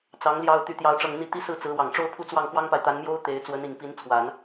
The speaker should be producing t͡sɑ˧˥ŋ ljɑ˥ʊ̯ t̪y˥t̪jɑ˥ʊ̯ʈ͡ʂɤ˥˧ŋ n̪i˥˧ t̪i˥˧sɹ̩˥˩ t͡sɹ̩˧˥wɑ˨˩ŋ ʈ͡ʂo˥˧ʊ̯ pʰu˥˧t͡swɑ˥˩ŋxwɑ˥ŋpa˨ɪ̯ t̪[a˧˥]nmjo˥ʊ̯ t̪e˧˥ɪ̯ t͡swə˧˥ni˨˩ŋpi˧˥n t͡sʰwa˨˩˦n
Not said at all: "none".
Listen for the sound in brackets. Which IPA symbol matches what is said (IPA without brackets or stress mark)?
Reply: a˧˥